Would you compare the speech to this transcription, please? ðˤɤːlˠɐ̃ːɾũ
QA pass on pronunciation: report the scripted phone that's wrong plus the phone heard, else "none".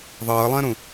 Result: none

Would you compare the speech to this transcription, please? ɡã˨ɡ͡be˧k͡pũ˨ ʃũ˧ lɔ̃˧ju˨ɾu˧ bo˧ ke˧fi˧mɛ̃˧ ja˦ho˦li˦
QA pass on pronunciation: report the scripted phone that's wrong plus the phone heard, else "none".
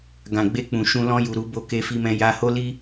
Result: a˦ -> a˧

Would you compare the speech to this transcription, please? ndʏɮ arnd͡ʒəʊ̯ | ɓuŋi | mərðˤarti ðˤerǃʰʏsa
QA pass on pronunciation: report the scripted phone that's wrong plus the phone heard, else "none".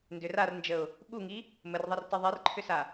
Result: ɮ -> r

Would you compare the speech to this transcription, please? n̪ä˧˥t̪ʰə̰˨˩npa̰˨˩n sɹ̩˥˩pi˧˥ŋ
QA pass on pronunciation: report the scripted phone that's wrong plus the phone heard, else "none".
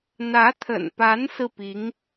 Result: a̰˨˩ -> a˧˥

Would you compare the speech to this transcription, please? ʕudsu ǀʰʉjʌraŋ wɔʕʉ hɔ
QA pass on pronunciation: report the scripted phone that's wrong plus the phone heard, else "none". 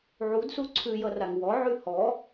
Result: none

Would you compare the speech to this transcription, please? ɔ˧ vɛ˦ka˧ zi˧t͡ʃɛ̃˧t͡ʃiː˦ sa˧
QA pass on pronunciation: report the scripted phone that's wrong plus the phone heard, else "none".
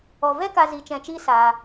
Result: none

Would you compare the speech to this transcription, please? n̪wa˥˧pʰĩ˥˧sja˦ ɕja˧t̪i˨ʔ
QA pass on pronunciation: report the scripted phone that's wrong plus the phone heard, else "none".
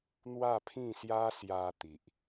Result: ɕ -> s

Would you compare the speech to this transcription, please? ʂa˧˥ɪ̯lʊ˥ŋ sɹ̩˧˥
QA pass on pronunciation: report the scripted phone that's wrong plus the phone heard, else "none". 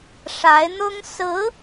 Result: l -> n̪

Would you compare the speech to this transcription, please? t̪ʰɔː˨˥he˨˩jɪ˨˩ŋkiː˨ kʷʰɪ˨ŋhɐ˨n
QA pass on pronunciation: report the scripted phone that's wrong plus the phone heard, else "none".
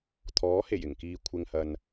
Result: none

